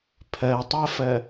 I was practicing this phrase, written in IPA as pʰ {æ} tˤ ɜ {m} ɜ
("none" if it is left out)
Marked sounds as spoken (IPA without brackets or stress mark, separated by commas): ɜ, f